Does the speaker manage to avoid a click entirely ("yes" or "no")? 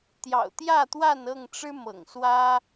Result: yes